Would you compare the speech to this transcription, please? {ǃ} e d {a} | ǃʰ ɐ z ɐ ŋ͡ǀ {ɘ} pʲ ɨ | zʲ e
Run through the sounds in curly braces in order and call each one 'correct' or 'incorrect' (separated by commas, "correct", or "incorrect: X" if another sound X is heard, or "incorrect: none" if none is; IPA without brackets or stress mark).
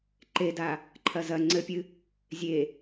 correct, correct, correct